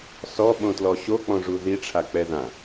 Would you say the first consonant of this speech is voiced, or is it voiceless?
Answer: voiceless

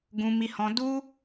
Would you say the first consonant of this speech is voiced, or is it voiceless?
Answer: voiced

